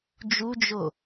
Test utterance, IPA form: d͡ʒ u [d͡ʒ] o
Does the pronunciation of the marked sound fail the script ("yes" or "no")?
no